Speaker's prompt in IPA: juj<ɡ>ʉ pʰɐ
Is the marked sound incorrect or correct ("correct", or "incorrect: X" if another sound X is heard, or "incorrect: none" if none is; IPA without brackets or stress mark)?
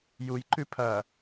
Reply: incorrect: ǃ